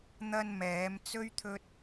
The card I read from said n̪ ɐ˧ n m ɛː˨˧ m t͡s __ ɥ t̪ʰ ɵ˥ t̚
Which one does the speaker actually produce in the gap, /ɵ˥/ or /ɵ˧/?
ɵ˥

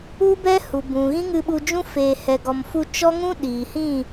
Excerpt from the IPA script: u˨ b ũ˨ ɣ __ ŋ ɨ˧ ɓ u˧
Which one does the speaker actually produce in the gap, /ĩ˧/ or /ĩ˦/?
ĩ˦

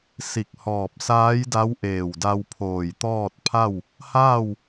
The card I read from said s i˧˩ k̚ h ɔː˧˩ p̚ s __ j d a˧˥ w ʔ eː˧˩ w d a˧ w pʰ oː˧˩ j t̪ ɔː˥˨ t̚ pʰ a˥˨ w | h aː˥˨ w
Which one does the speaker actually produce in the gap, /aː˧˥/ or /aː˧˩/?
aː˧˥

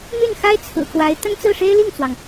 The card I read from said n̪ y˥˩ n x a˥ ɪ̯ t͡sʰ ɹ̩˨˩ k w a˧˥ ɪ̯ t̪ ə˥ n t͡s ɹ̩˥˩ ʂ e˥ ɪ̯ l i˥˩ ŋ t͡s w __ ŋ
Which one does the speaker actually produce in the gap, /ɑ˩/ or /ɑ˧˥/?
ɑ˩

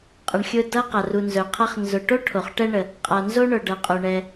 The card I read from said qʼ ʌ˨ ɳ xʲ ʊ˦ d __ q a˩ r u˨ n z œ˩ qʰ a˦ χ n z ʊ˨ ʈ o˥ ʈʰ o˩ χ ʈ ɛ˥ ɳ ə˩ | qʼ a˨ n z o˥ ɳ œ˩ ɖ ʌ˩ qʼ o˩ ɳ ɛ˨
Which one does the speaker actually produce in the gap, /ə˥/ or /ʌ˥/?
ʌ˥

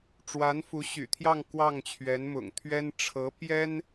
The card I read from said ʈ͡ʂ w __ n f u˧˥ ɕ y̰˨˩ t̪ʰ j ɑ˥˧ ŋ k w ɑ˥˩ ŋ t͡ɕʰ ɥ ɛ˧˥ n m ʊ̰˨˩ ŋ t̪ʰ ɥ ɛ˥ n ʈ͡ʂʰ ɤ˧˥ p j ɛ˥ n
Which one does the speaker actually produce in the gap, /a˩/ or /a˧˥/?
a˧˥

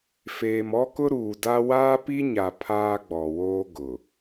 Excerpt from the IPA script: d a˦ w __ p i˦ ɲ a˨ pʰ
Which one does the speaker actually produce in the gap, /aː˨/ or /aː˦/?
aː˦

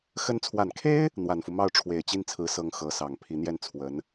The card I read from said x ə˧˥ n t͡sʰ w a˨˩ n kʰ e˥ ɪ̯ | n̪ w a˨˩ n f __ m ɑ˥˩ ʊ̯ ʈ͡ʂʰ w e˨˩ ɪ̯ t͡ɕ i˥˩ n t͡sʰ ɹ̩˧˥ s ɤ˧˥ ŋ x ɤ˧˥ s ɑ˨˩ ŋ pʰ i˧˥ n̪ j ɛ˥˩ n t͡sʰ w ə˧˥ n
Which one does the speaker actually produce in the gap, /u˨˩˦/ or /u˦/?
u˦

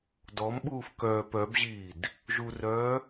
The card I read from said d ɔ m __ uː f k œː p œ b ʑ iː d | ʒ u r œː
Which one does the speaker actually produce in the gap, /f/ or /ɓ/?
ɓ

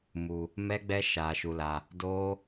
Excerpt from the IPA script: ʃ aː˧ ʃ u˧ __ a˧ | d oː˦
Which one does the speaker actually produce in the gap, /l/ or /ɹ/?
l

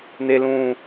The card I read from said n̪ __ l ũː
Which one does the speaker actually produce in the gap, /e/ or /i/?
e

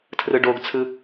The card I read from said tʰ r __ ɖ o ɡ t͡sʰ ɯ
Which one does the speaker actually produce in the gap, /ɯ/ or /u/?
ɯ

